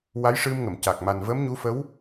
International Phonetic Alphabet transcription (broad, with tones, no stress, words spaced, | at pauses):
wa˧˥jʂɨ˧mŋə˨˩˨mca˨˩k̚ ma˨˩nvə˧˥mɲu˧˥fə˧˥w